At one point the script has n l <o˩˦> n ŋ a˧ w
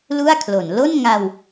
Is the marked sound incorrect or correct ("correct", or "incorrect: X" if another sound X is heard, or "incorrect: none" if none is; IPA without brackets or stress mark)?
incorrect: o˥˩